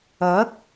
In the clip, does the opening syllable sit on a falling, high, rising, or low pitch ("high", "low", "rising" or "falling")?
rising